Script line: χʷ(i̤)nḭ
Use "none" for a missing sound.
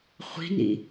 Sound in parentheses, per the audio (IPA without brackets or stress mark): i̤